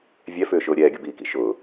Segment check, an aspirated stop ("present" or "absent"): absent